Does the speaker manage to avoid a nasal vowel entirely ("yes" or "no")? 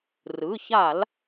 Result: yes